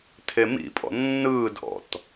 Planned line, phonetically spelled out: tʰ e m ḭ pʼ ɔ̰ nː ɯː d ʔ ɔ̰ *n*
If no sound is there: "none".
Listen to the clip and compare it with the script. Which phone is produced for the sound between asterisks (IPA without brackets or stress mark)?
t